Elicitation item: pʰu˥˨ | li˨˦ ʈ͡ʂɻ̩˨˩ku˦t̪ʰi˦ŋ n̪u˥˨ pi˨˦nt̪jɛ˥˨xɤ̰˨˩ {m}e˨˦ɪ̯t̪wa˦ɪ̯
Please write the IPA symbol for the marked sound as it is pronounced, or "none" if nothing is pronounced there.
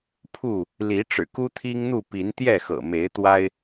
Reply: m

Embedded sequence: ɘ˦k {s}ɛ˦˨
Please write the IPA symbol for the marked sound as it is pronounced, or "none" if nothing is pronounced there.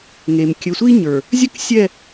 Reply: sʲ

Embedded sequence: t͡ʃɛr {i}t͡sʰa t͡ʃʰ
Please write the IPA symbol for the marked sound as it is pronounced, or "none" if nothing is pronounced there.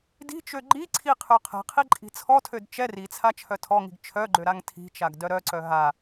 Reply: i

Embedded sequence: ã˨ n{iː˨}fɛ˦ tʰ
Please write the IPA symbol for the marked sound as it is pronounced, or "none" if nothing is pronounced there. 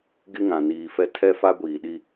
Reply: iː˨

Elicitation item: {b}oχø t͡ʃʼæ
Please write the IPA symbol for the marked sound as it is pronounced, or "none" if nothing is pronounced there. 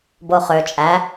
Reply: b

